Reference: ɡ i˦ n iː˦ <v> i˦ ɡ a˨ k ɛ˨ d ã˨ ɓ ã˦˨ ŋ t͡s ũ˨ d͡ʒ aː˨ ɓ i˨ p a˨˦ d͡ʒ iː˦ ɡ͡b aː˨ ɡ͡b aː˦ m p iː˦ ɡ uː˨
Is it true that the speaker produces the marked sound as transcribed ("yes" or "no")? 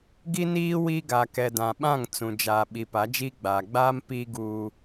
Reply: no